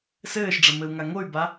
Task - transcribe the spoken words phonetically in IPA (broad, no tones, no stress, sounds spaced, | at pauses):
s ɘː ʃ ɖ͡ʐ ɐ m ɘ u̯ ŋ a ŋ o y̯ b a